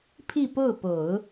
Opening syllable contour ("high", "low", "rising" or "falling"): falling